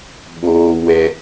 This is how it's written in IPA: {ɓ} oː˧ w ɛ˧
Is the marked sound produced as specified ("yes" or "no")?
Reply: yes